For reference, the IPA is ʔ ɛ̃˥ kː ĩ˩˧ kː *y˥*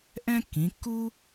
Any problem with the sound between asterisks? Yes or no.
yes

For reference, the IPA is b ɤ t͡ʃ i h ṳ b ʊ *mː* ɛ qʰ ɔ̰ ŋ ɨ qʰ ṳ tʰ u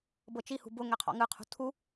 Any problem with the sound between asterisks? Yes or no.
yes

